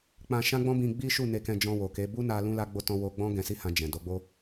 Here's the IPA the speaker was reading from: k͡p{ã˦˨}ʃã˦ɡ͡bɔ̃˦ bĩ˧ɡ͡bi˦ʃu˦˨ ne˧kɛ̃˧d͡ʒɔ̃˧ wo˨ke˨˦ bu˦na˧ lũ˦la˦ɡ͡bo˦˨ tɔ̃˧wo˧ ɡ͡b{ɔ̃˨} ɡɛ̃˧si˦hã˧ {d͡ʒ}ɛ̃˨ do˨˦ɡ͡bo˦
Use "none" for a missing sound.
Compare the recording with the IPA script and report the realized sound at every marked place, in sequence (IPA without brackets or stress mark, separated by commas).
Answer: ã˧, ɔ̃˦, d͡ʒ